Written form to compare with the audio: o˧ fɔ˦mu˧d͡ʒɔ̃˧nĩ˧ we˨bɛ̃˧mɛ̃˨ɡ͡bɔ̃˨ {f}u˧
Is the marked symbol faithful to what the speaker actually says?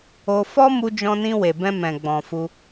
yes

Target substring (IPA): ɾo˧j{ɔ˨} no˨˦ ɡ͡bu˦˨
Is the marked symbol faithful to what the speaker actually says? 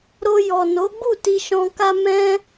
yes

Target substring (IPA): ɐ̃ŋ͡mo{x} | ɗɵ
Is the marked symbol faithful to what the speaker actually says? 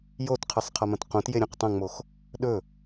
yes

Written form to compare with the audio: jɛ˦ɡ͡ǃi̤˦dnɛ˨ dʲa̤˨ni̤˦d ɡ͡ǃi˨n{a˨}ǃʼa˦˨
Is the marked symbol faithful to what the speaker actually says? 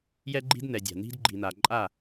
yes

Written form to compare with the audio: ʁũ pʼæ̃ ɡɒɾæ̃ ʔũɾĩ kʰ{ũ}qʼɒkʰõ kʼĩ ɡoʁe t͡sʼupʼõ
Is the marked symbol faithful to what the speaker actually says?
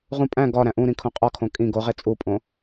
no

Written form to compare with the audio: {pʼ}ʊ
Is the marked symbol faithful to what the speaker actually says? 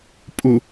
yes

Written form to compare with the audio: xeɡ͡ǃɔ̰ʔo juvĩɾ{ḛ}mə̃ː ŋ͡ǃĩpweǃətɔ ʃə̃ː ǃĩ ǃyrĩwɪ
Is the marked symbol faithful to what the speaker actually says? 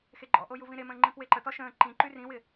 no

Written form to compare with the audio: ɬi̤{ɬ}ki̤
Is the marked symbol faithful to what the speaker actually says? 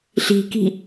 no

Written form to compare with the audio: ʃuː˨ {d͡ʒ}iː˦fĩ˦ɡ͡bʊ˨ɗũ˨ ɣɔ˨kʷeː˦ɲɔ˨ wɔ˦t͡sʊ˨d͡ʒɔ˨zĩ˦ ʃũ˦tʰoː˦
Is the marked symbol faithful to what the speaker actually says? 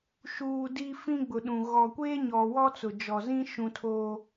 no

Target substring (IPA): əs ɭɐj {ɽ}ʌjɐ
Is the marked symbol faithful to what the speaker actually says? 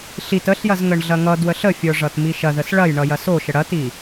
no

